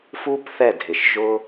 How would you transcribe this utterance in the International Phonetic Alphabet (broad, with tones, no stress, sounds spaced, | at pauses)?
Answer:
f u˧ p θ ɛ˦˨ dʱ ɪ˨ ʃ ʒ ʊ˦